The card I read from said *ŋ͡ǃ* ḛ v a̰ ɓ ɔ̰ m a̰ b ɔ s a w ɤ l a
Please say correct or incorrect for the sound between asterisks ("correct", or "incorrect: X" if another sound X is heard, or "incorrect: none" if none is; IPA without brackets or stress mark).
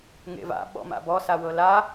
incorrect: ŋ